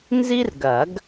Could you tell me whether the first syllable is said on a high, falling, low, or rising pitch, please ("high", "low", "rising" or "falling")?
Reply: high